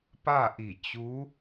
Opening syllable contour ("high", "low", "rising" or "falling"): falling